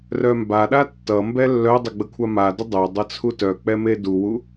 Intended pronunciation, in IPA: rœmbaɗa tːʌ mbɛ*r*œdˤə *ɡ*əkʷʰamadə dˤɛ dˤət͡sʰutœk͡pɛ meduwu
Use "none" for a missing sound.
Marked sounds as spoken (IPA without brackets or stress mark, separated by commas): lː, ɡ͡b